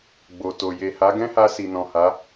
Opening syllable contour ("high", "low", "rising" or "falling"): low